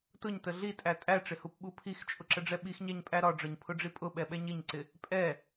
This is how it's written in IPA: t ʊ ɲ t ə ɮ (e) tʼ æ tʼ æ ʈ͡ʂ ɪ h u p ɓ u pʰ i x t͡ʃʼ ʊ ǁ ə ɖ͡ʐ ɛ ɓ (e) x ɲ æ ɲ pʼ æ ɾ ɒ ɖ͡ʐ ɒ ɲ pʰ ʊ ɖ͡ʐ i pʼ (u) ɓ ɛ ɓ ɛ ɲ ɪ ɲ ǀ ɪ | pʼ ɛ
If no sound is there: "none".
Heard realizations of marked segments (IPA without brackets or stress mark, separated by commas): i, i, ʊ